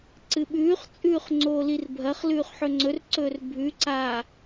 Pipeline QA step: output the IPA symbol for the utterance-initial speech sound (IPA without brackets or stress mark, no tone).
ǀ